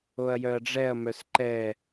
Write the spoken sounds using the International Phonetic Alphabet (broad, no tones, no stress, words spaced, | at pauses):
oɐ̯jœɐ̯ɖ͡ʐɛɐ̯ mœsǃɛ